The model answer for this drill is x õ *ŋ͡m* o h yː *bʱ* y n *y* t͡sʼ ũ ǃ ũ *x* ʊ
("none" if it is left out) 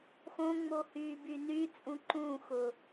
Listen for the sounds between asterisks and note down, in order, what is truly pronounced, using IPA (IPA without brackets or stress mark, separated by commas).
ŋ͡m, b, y, x